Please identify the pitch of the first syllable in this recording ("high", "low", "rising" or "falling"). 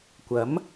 rising